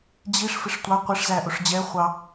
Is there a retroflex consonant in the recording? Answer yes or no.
yes